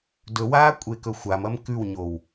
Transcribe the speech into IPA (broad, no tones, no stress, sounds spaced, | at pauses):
d ɵ w aː kʷʼ e k ɵ xʷ a m ɐ m k ʉ w ɲ o w